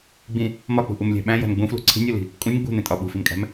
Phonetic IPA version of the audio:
ɡ͡b ĩ | m ɒ k͡p ṳ ʔ u m lʲ æ̤ ɓ æ̃ j æ̤ n ɡ͡b ũ f l ṳ ǀʰ i̤ nʲ o l i̤ | kʼ ũ nʲ ɡ͡b ṳ n ẽ tʼ ɒ ɓ ṳ f i m kʼ æ̤ m

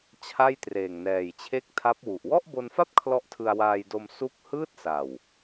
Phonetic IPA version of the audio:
t͡ɕʰ a˥˩ j t r eː˨˩ ŋ n ɛː˨˩ j t͡ɕʰ e˥˩ k̚ tʰ a˦˥ p̚ w u˨˩ ʔ w ɔ˥˩ ʔ b o˧ n f a˥˩ p̚ kʰ l ɔ˦˥ ʔ tʰ ɯ˧ a̯ w aː˧ j d o˧ m s u˥˩ k̚ h ɯː˥˩ t̚ s a˨˩ w

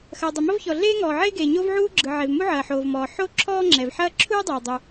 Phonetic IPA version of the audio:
x ɐː˩ dˤ o˩ m ɐ˥ v ç ɔ˩ ɮ eː˥ ŋ ɔː˩ ʕ eː˥ ɡ eː˩ ɲ o˥ v ʕ uː˥ ɡ͡ǁ ɯ˩ ʕ e˩ v m u˥ ʕ ɐː˩ ħ oː˩ v m ɔː˩ ħ o˥ ǁʰ ɔː˥ ŋ͡ǁ ɛ˩ v ħ ɐː˥ ǁʰ uː˥ dˤ uː˩ dˤ u˩

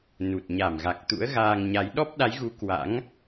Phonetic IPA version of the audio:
n u˨˩ t̚ ɲ a˧˩ m ɣ a˨˩ k̚ t̪ ṵ˧˥ ə̯ ɣ aː˧ ŋ ɲ a˨˦ j ɗ ɔ˦˥ p̚ ɗ a˨˦ j ɣ u˨˦ k w a̰˧˥ ŋ

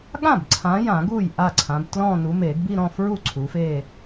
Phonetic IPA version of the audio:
ɠ ã˥˩ b ǀʰ ã˨˦ j ã˨˩˦ ɡ u˥˩ j ʔ a˥˩ ǀʰ ã˨˦ b t l ɔ̃˥˧ n u˨˦ m e˨˩˦ ɡ b i˥˧ ɾ ɔ̃˥˧ f ɹ u˥˩ ǀʰ u˨˦ f e˥˧

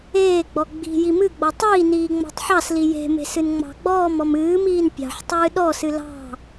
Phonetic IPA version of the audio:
eː ɡ͡b ɔ ɡ͡b i̤ j i m ɨ ɡ͡b ɔ tˤ iː n iː ŋ͡m ɑ̤ tˤ ħ ɑ s l i j e̤ m e̤ s ɨ n ŋ͡m ɑ̤ ɡ͡b ɔː m ɔ m ɨː m iː n pʲ ɑ̤ ħ tˤ ɨː ɗ ɔ s ɨ l ɑ̤

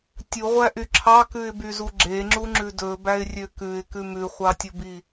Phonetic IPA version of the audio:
tʲ u ʁʷ æ ʔ y ǁʰ ɑ k ʉ ɪ̯ b y z u ɡ͡ǁ e ŋ͡ǁ u ŋ͡ǁ ʉ d ɵ b æ ɪ̯ rʲ ø k ʉ ɪ̯ k ʉ m ʉ χʷ ɑ tʲ o b i

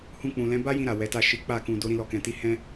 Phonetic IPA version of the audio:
h ũ˧ k͡p ũ˨ l ɛ̃˨˦ b a˦ j ĩ˧ ɾ a˨ w ɛ˨˦ t a˦˨ ʃ i˨˦ k͡p a˦˨ k ũ˧ d o˧ ɾ ĩ˦ l ɔ˧ k ɛ̃˧ t i˦ h ɛ̃˦

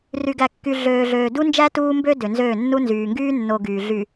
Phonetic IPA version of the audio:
r y˨ ɡ æ˨ kː y˨ ɮ øː˨ ɮ øː˨ d u˦ n d͡ʒ æ˦ t uː˦ m b ø˦ d ø˨ n z øː˦˨ nː u˦ n z yː˨ ŋ ɡ yː˦ nː o˨ ɡ yː˨ ɮ y˨

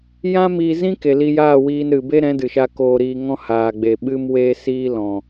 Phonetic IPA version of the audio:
j ã˦ m iː˧ z ĩ˦ k e˨ l i˧ j aː˦˨ w iː˧ n ɾ ɨ˨ b e˦ ɾ ɛ̃˨˦ d ɨ˨ ʃ a˧ k oː˧ ɾ iː˧ ŋ ɔ̃˦ h aː˨ ɡ͡b e˨ ɓ ɨ˦ m w eː˦ s iː˦ l ɔ̃˨

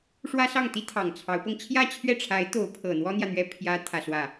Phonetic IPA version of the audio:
ʂ w ä˥ s ɑ˥˩ ŋ t̪ i˥ t̪ʰ ɑ˨˩ ŋ t͡sʰ ɑ˧˥ ʊ̯ p ɤ˧ ŋ t͡ɕʰ j ä˥˧ t͡ɕʰ ɥ ɛ˥˩ ʈ͡ʂʰ a˧˥ ɪ̯ t̪ o˧˥ ʊ̯ pʰ ɤ˨˩ n̪ w ɔ˥ n̪ j ä˨ n̪ ɥ ɛ˥˩ pʰ j ä˥ t̪ʰ ä˥˧ s w ä˥˩

